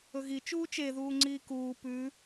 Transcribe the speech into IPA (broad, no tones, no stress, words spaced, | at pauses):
ɵɣi t͡ʃuːt͡ʃeðuːŋ͡ǀiː kuː pʉ